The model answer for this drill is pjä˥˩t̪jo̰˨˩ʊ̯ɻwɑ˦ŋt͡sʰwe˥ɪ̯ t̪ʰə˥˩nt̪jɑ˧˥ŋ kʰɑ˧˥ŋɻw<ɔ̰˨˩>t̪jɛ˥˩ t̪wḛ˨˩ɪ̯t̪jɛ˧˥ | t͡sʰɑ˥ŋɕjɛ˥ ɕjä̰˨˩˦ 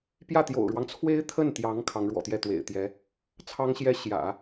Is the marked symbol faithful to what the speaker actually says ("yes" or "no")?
yes